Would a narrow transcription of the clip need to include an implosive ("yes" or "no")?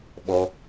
yes